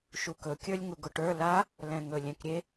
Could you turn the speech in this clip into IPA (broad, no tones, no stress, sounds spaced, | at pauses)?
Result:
ʃ u k ɵ kʲ ə˞ lʲ ŋ u ɡ ʊ ʈ ə˞ l a | l ɛ̃ ŋ ɵ lʲ ɛ̃ k ɾʲ e